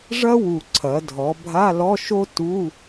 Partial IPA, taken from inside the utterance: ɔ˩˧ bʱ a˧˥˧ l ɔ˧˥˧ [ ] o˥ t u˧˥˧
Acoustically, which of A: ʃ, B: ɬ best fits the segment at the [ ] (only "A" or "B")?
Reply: A